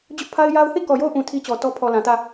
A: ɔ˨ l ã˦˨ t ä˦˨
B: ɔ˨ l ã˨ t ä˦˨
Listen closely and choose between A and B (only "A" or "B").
B